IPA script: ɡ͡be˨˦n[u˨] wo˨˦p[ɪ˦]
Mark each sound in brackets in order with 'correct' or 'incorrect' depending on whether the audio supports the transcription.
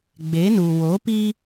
correct, incorrect: i˦

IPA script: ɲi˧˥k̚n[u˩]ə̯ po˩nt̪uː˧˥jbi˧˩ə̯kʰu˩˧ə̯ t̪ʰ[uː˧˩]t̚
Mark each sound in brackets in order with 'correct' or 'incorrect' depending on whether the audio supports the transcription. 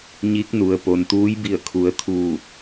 correct, correct

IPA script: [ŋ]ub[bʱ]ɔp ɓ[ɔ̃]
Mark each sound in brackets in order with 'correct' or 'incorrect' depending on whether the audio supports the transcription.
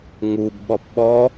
correct, incorrect: ɓ, incorrect: ɔ

